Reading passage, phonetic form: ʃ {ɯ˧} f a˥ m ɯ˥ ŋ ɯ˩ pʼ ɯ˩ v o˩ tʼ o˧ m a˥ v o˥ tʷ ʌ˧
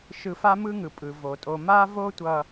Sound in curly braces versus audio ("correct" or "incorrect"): correct